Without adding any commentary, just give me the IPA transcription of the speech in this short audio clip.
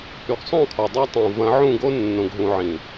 hy˨ɡsˤõ˦˨kʰɔ˨ dˤɑ˦tˤõ˨ vɐ̃˨˦ʕũ˦˨ɡo˦ nːõ˨ɡɦũ˨ʕĩ˨

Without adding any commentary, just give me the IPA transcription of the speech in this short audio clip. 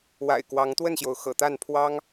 wa̰˨˩ɪ̯kwɑ˨˦ŋt̪wə˥˨nɕjo˩ʊ̯ xɤ̰˨˩t̪a˥˨npʰwɑ˦ŋ

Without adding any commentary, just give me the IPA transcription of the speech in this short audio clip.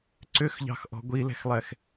ǀʏxʎɑ̤xʔɔ̤ ɡʷilɛ̤xlˠɛx

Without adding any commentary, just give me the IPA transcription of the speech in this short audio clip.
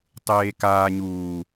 tˤeːkaː ɲuː

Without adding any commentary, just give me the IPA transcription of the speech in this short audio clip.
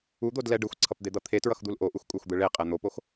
ud̪odlɛ ɖɯxʷǀʰʌpd̪ed̪ʌ t̪ʰetɹʌxd̪ul ʔoʔuxkʷʼaxʷd̪ɯ ɭeqʼɛ n̪opox

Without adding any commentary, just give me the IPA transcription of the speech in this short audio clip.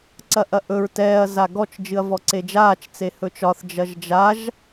ǀɐʔɐʔɵɹ tɛːɐ̯ zaɡɔt͡ʃ d͡ʒɨɐ̯vɔǀed͡ʒaːt͡ʃ t͡sehɵt͡ʃɒθ d͡ʒɐʒd͡ʒaʒ

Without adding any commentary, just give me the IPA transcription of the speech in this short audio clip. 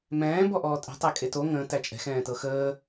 mɛ̃ː bɔʔɔːtʼɛ̤ tˤækʼeto ŋə̃ː tæt͡ʃʼɛ̤ xɛ̃ːtɤxəː

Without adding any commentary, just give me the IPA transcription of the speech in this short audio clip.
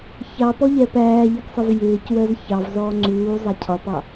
çɑpɔʎɛ pæːʎiɡsˤɪv jɪːcwɜz çɑvzɔː ŋ͡ǀuːzˤæ cʰɒpɑ

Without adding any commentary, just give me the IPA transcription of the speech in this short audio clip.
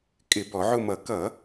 kʼɪ˧˩˧bɔ˧˩˧ʕʊ˦˨mʌ˧˩˧ kʌ˧˩˧

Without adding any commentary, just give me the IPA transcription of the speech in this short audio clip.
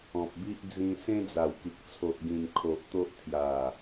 ɔ̃˨p̚bi˦ʔ d͡zĩ˧ sẽ˦d͡za˨˩wki˨k̚ t͡sʰo˨ʔɡĩ˨˩m kʰo˨ʔt̪o˦ʔ t̪ʰja˨˩

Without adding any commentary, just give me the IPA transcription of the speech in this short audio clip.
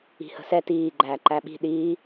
i̤hə̤sɛ tiː ɡ͡ǃæːǃæɓi̤ ɗiː

